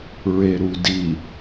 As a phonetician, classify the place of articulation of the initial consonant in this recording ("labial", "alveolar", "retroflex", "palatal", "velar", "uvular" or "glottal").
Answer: alveolar